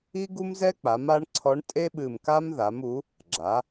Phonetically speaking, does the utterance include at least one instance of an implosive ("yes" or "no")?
yes